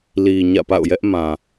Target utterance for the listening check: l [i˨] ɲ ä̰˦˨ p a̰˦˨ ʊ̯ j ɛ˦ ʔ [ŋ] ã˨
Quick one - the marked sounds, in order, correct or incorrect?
correct, incorrect: m

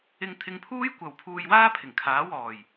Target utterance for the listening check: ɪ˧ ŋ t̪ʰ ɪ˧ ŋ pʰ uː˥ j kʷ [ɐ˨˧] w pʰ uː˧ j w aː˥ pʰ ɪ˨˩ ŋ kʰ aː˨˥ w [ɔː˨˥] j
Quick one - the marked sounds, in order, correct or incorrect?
correct, incorrect: ɔː˨˩

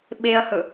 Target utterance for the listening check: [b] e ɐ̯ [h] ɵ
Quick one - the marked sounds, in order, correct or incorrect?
incorrect: ɓ, correct

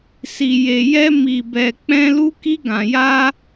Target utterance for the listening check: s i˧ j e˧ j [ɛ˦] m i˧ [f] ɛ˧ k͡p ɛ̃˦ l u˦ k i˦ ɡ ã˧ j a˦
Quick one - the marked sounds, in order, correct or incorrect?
correct, incorrect: b

